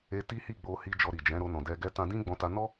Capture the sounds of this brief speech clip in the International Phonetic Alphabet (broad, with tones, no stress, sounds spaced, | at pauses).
e˧ t i˦ h i˦˨ ɡ͡b o˧ h i˧ d͡ʒ ɔ˧ ɾ i˨ d͡ʒ ɛ̃˨˦ ɾ o˧ n ɔ̃˨ d ɛ˧ ɡ ɛ˧ t ã˧ d ĩ˦ ɡ͡b ɔ̃˧ t a˧ n ɔ˦